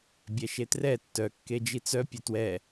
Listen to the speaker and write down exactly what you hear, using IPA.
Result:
bʲ ɛ ʃ e t r ɛ tː œ kː e d͡ʒ i t͡s œ pʲ œ t w ɛ

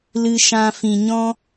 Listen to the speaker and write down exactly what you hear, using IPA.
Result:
l ɨ˧ ʃ ã˧ f ĩ˨ ɲ ɔ̃˦

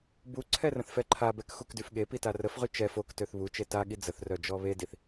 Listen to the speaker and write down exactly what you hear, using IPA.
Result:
b u ǀʰ ɛ r ə̃ θ f ɛ ǃʰ a b ɛ k x u k d y f ɠ e p i t a r ə f ʁ y t͡ʃ ɛ f o k t ø θ β u t͡ʃ e t a ɠ i d͡z ə θ r œ d͡ʒ ɔ β e d i θ

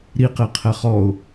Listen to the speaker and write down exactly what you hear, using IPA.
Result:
ɾ i q e qʰ ɛ χ ɔ ʊ̯

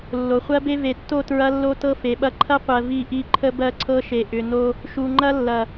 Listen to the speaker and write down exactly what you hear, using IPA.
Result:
lː o˨ χʷ ɜ˦ b e˦ v e˨ tː o˦˨ t ɹ ɐ˦ lː o˦ t ɤ˦ f e˨ ɓ ɐ˦ ǃʰ ɐ˦ qʷ ɜ˨ v i˦ ʔ i˦ ǃʰ ə˦ b ɜ˦ ǀʰ ɤ˦ ʃ e˨ ʔ ʏ˨ n o˦ | ʃ u˨ ŋ͡ǃ ɐ˦ lː ɐ˨

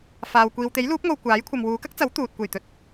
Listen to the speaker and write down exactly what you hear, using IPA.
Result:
f aː˨ w kʷ iː˨ w t̪ e˨˥ j l uː˨˥ p̚ ŋ o˨ w kʷ aː˨˥ j kʷʰ ɐ˨ m w uː˨˧ k ɐ˥ k̚ t͡s ɐ˨˥ w t̪ uː˨ t̚ kʷ e˨˩ j t̪ ɵ˨˥ t̚

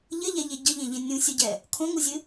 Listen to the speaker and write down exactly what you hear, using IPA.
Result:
ʎ ɘ ʎ ɛ ʎ e ɟ ɘ ʎ ẽ ʎ ẽ nʲ ũ sʲ u ɟ ɛ | kʰ õ ŋ u zʲ ɨ

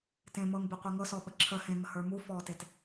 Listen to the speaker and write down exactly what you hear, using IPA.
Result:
t ẽ m ɤː ŋ b e qʷ ɛ ŋ ɤ s ɔ ɓ ə ǁʰ ə h ẽ ŋ ə h ə˞ m u f ɔː t e t

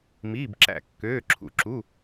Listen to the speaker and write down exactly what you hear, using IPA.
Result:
m iː˧˥˧ b ǁ æ̰˦˨ kː øː˧˥˧ ǁʰ ṵ˦˨ ǁ u˧˥˧

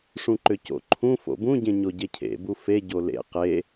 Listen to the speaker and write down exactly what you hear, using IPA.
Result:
ʂ ũ ǃ ʏ c o̰ ǃʰ ũ f o̰ b ũ ɟ ẽ ɲ o ɟ e cʰ ḛ b u f e ɟ o l ḛ q e

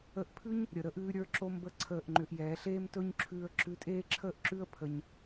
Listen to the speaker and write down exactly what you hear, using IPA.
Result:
ə˧ ʔ pʰ ʉ˦ ɲ | ɾʲ ə˨ ɾ ə˦ ʔ ʉː˦ ɾʲ ə˞˦ ǁ o˦ m b ə˦ ǀʰ əː˦˨ ʔ ŋ͡ǃ ʏ˧ ʔ j ɛː˨˦ ɬ eː˦ m t ɵ˦ ɲ ǁʰ ʉː˧ ə̯ ǁ ʉ˧ tʼ eː˦ ǁʰ əː˦ ʔ ǁ ʉ˦ ə̯ pʰ ə˧ ɲ

